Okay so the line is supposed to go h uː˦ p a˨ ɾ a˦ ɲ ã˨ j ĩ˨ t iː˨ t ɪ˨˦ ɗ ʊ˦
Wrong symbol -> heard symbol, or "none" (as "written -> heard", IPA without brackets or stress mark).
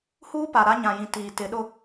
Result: none